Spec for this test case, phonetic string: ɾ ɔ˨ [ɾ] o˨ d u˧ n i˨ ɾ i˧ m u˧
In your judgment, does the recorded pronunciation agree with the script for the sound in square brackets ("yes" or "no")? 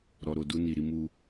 yes